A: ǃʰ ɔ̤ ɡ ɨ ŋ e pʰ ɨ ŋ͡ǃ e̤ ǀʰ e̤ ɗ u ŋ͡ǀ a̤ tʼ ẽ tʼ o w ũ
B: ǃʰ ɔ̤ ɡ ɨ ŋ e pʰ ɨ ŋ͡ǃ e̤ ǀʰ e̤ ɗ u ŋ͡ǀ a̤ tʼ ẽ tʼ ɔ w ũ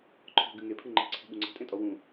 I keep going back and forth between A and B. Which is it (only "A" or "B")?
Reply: B